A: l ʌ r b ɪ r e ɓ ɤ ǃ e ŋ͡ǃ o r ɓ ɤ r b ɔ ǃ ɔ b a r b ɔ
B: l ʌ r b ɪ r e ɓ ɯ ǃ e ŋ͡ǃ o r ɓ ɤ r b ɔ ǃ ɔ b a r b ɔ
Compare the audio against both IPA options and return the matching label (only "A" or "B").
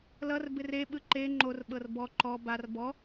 B